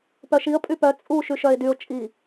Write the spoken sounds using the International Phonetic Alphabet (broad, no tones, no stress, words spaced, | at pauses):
pœʃiə̯ pʼypœ t͡sʼu ʃyʃœɪ̯dyʊ̯ t͡ʃʼi